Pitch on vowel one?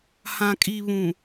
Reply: low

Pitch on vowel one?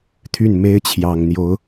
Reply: falling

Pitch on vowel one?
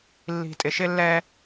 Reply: low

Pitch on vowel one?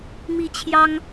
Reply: falling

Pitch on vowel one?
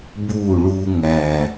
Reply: falling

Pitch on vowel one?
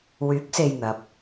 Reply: rising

